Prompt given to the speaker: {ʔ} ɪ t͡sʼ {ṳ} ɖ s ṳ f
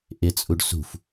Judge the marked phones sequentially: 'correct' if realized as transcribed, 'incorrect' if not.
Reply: correct, incorrect

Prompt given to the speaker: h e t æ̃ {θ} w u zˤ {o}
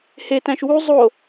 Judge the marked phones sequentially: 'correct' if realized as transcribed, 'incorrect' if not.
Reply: incorrect, correct

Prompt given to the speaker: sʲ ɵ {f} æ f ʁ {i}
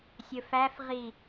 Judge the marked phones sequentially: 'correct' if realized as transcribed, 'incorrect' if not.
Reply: correct, correct

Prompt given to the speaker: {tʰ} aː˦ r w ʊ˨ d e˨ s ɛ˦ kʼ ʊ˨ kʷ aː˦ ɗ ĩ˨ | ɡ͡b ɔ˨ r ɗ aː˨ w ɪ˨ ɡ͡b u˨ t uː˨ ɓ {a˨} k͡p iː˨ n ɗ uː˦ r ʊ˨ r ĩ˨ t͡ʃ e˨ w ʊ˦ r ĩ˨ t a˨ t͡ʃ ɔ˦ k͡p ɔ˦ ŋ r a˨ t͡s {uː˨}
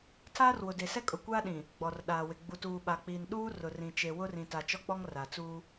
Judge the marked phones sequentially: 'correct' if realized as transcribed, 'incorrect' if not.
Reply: correct, correct, incorrect

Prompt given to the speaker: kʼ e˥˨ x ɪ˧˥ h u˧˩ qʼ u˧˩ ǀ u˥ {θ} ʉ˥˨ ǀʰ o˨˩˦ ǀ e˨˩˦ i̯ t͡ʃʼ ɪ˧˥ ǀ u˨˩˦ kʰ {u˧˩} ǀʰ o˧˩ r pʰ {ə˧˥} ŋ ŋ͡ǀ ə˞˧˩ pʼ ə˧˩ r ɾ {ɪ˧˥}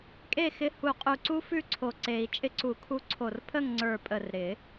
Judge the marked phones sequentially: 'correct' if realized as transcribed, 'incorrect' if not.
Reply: incorrect, incorrect, incorrect, incorrect

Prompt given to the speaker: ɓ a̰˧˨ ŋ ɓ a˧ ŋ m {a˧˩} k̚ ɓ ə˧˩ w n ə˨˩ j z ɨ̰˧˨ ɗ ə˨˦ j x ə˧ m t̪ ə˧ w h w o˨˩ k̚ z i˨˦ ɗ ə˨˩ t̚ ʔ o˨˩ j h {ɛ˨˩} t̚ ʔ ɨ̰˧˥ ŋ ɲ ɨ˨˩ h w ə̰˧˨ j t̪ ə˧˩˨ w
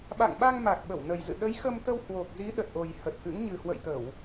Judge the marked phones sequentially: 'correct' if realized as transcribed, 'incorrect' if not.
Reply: incorrect, incorrect

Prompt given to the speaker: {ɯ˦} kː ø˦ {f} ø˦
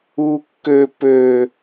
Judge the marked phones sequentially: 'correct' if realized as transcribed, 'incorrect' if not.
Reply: incorrect, incorrect

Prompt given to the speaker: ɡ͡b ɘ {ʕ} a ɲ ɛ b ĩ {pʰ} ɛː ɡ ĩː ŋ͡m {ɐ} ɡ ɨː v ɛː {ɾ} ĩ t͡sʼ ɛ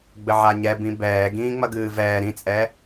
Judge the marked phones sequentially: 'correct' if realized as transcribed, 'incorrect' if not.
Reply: correct, incorrect, correct, correct

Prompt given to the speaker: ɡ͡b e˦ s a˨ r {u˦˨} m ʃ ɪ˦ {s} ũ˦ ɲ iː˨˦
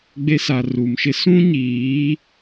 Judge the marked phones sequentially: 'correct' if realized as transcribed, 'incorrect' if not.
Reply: incorrect, correct

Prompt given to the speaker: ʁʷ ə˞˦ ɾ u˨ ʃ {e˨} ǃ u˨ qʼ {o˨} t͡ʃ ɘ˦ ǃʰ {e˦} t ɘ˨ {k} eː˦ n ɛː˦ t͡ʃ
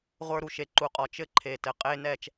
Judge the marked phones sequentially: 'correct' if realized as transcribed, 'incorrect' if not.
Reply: correct, incorrect, incorrect, incorrect

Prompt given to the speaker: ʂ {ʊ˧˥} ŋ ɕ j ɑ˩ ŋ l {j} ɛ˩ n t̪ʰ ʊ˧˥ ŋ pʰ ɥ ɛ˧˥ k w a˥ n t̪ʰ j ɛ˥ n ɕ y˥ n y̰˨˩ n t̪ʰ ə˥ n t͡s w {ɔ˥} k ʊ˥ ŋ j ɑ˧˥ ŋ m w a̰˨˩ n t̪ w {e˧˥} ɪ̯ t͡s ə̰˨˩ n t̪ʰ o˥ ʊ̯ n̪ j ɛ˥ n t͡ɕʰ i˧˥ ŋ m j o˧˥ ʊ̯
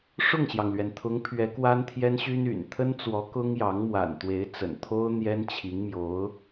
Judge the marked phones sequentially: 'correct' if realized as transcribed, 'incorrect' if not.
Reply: incorrect, incorrect, incorrect, correct

